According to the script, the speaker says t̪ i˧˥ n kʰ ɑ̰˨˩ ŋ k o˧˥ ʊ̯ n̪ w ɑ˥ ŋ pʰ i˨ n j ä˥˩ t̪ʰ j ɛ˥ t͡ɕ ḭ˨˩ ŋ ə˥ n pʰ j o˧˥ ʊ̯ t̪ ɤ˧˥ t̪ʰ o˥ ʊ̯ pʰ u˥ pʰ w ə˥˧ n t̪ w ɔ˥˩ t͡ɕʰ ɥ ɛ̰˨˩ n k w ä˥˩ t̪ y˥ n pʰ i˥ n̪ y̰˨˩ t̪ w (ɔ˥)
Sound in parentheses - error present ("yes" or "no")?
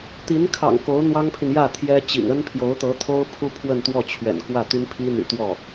yes